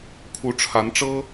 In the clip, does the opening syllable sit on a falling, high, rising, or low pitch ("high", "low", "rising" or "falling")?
rising